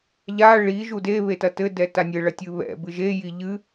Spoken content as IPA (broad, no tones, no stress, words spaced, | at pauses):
ʎa ɭi ʒude βetɐtɘ dɛtanʲɘ ɭɐtʲɨβɛ̰ bɨʒe jiʎɨ